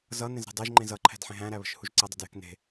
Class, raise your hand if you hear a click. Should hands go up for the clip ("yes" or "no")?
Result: yes